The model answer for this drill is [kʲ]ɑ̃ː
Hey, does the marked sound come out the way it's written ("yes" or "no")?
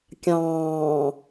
yes